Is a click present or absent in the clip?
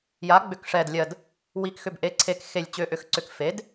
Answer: present